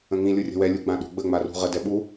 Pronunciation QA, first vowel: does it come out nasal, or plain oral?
nasal